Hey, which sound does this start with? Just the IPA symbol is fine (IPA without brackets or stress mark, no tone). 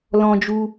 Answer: l